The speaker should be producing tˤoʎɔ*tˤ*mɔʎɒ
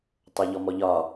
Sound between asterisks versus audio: incorrect: none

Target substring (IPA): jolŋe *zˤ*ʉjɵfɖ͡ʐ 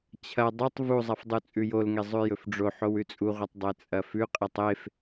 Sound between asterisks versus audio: correct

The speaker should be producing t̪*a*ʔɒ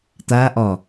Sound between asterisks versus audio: correct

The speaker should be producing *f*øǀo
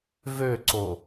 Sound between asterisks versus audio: incorrect: v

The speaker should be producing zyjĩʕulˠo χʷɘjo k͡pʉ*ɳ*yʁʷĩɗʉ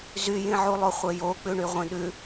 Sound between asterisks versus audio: correct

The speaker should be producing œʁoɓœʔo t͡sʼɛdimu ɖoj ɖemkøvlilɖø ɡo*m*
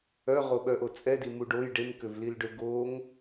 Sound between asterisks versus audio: incorrect: ŋ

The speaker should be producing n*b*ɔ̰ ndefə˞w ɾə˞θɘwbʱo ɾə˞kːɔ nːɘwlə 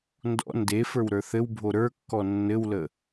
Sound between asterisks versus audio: incorrect: d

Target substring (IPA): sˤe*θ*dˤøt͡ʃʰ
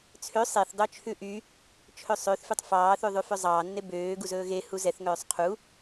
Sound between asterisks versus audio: correct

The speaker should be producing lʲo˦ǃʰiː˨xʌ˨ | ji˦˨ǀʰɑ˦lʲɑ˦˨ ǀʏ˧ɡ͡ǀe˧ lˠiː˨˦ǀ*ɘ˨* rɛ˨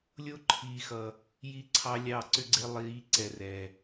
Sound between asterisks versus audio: incorrect: ɛ˨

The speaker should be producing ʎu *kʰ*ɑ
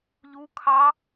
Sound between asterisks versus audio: correct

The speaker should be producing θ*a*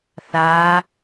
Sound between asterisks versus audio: incorrect: aː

